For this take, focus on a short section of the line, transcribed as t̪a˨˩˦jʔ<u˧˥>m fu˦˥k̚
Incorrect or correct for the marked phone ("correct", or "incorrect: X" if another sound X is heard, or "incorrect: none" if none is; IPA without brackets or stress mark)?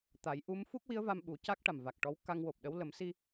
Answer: correct